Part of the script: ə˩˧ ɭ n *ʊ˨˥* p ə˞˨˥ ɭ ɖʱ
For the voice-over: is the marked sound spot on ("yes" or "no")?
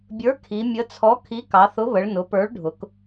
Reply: no